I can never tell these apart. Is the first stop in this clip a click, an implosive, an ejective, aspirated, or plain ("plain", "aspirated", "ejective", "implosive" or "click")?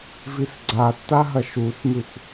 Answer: click